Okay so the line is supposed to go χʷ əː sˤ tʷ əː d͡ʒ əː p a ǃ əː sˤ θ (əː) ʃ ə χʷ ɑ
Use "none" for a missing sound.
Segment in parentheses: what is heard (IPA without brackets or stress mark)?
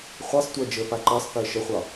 əː